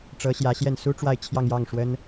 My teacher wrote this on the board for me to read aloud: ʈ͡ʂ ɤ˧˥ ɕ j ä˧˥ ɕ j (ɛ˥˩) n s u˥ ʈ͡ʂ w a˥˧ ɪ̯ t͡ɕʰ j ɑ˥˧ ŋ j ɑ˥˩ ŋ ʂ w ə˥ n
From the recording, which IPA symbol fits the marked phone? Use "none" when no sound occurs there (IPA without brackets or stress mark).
ɛ˥˩